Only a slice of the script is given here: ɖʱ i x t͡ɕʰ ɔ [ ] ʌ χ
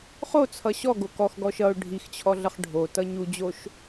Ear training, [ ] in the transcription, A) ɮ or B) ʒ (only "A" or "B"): A